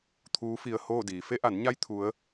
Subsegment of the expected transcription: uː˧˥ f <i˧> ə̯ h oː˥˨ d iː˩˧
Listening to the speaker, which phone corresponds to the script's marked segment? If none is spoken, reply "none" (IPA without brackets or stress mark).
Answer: i˧